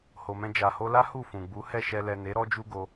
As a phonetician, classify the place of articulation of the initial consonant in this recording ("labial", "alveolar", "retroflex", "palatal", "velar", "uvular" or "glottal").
glottal